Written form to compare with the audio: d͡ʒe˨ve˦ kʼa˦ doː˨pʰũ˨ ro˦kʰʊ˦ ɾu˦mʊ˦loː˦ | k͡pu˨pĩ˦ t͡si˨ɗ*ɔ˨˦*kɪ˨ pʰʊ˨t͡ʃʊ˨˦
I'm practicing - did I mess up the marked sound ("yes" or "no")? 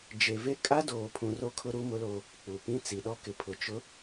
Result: yes